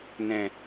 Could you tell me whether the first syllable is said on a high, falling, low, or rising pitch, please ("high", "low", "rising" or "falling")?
low